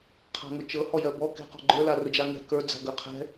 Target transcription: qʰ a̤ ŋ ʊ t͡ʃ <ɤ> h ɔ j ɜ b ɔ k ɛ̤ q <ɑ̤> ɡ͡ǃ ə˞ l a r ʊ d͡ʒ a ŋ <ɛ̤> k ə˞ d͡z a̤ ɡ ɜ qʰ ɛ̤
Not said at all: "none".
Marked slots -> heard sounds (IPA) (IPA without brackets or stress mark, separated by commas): ɤ, ɔ̤, ɛ̤